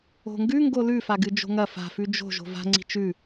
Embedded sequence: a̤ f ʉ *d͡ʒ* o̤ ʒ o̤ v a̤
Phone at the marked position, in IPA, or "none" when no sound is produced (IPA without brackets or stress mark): d͡ʒ